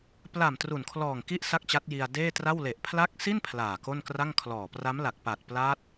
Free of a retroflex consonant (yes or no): yes